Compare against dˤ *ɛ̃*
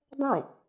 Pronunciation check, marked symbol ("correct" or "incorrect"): correct